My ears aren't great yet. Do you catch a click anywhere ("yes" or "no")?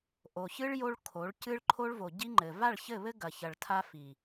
yes